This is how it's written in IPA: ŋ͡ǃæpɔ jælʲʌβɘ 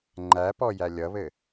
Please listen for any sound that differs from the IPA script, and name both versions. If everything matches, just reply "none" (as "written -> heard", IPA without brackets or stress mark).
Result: none